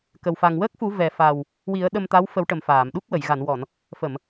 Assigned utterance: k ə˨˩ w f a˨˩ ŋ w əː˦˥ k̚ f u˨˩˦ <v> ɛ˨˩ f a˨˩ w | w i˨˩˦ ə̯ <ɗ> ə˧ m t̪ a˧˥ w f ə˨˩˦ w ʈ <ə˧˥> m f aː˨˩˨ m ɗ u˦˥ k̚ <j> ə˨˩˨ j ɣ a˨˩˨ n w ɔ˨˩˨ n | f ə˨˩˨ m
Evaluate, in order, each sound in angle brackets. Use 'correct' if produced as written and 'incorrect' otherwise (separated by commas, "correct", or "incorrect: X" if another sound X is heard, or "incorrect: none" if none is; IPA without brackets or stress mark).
correct, correct, incorrect: ə˨˩, incorrect: w